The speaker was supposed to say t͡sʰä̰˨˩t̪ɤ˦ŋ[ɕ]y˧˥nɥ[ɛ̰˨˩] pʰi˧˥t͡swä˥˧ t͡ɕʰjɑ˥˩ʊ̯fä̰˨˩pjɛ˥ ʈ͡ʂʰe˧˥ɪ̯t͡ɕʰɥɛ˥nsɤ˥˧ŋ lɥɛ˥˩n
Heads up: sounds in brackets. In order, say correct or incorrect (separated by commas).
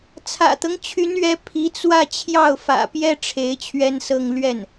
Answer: incorrect, incorrect